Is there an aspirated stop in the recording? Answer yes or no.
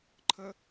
yes